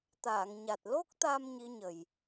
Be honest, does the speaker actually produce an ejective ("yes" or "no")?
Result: no